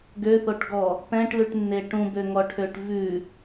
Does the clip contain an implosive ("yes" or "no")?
no